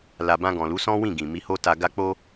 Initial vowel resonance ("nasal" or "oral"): oral